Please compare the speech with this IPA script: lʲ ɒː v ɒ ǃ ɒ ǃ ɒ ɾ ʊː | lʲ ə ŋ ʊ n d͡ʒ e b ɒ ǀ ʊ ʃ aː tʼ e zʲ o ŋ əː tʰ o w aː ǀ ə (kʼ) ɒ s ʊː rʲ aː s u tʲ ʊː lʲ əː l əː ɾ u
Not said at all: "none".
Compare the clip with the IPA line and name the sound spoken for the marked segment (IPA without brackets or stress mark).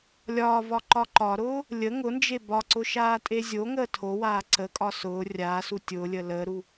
kʼ